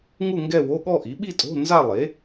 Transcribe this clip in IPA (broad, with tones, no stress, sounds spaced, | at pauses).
ŋ u˥˧ ŋ ɡ ɛ˥˧ w o˧˥˧ ɠ ɔ˥˧ ʔ i˩˥ ɓ i˥˧ tʼ o̤˧˥˧ n z a˥˧ lˠ e˩˥